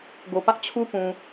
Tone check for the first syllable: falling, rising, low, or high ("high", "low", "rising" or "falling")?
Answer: low